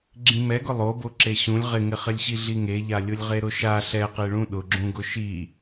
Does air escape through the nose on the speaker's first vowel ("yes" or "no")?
yes